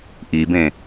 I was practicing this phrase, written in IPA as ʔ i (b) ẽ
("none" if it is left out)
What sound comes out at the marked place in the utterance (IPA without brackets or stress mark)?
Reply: b